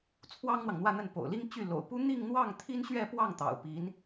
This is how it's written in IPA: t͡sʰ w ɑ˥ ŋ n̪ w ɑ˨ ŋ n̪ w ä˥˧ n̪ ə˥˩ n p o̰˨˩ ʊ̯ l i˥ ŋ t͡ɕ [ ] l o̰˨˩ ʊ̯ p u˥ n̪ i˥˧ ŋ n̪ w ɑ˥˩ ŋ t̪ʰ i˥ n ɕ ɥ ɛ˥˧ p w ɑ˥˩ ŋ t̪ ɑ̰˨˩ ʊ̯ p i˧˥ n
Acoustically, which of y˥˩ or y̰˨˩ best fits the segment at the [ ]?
y˥˩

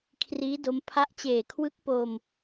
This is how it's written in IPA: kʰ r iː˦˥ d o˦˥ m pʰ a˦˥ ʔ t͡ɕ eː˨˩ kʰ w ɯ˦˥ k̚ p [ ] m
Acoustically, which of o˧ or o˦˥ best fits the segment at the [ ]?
o˧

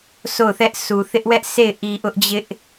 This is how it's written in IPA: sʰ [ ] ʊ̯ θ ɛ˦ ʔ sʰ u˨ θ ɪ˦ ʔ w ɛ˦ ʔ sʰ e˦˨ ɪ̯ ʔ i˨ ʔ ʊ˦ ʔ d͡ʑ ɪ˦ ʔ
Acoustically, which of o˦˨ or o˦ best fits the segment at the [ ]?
o˦˨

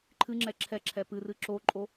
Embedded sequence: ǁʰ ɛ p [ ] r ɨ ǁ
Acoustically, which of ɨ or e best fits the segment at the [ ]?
ɨ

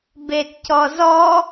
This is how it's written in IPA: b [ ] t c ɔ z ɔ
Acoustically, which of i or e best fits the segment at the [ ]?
e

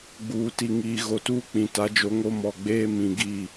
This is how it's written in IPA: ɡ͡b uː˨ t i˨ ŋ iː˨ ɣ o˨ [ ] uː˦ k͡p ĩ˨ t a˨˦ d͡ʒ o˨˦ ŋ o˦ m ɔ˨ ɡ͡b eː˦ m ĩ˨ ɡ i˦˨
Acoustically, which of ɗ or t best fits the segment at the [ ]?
t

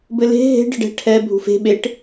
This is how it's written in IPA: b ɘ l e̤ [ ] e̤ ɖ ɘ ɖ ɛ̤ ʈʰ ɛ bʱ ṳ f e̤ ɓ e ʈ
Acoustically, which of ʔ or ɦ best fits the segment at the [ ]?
ɦ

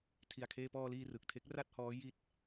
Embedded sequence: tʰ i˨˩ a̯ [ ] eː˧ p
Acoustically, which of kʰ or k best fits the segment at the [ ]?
kʰ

